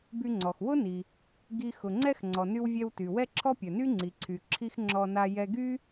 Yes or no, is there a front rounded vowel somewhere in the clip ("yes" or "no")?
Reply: yes